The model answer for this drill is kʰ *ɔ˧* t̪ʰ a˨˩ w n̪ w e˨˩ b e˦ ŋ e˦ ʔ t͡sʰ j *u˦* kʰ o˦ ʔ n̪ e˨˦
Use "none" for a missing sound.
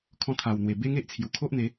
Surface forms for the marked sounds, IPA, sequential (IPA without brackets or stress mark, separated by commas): ɔ̃˧, u˨˩